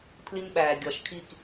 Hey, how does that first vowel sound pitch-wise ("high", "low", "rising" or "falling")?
high